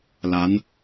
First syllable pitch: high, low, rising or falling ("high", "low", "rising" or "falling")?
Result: rising